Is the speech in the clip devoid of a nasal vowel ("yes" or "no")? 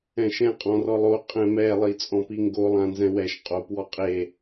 no